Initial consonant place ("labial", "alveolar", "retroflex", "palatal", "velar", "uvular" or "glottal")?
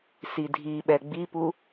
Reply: alveolar